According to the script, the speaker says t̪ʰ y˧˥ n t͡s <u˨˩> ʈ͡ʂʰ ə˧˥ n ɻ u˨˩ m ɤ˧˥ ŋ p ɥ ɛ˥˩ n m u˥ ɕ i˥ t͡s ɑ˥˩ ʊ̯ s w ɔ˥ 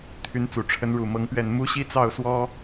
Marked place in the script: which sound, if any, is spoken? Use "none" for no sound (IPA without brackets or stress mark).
u˨˩